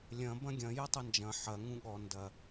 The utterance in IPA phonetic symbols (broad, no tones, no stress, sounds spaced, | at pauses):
lʲ ɐ̃ b ɐ̃ ɡʲ ɐ̃ j ɐ tˤ ɐ n d͡ʒ ɐ̃ ħ ɐ ŋ ũ ɠ ɔ n d ɐ